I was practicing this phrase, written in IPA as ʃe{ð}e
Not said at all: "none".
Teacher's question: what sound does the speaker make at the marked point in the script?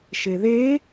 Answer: ð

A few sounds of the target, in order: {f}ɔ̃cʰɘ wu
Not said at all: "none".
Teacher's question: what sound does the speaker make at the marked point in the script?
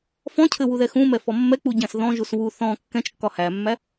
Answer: f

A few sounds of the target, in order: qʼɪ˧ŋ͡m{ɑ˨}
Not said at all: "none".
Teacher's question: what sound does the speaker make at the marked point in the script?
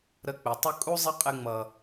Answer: ʌ˨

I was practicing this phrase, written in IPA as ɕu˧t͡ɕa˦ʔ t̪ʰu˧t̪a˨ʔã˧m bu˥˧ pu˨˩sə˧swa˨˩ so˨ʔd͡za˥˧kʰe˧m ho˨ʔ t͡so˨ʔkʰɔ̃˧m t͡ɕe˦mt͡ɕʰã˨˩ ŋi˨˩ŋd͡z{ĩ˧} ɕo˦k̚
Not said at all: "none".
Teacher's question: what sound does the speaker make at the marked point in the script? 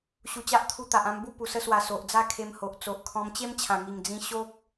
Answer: ĩ˧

